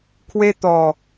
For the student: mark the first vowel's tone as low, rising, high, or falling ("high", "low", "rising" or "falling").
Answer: high